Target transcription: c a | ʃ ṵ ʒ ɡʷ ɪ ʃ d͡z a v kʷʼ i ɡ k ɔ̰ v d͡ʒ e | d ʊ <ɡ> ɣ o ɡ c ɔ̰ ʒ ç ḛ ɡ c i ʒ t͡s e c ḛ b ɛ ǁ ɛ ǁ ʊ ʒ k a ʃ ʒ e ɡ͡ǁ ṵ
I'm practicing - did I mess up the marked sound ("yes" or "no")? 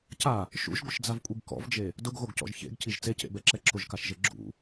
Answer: no